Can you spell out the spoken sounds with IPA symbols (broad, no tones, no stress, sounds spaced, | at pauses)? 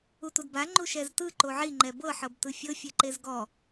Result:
u t u d b a ŋ͡ǃ u ʃ ɛ z t ɯ ǃ o ʕ i ŋ͡ǃ ɛ b ɤ ħ ɤ b t ɯ fʲ ɤ fʲ ɛ ǃ e z ɡ ɔ